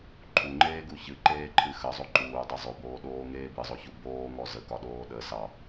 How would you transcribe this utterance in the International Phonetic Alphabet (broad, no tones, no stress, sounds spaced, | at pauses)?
ǃʰ u ŋ͡ǃ eː ɡ u ç ɨ ǃ eː ǃʰ ɨ x ə zˤ o ǃ uː dˤ e zˤ o b oː ɗ oː ŋ eː b ɨ zˤ o ç u b oː ŋ ɔ z ə k ɒ ɗ oː ɗ ə s ɑ